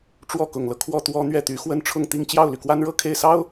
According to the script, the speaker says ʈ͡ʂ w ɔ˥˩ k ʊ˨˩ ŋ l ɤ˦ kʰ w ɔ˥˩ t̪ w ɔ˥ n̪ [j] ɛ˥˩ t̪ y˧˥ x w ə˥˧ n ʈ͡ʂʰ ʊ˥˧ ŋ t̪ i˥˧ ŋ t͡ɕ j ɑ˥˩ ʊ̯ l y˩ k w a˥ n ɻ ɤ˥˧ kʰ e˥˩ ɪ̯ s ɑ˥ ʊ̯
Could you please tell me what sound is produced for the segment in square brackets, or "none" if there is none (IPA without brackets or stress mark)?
ɥ